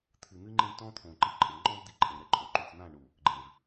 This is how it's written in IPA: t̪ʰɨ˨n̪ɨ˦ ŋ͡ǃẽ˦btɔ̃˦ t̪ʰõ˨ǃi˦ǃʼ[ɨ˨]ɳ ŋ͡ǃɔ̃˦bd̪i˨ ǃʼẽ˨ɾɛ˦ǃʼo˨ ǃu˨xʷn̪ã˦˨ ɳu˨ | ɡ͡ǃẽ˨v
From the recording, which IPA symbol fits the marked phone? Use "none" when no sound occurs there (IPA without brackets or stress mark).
ɨ˨